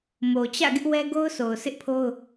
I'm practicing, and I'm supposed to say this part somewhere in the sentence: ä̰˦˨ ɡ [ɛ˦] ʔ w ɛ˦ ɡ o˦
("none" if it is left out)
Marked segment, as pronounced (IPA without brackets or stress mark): ɪ˦